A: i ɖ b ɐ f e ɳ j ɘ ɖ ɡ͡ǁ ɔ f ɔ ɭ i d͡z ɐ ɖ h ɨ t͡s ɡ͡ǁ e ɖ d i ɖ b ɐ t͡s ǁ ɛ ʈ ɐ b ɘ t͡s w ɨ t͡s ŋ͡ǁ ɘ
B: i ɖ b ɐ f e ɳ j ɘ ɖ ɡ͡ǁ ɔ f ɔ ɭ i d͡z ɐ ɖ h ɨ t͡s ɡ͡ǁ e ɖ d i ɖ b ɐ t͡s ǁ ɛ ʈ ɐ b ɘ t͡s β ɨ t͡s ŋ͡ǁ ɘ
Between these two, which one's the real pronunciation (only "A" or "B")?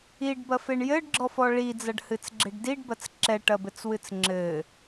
A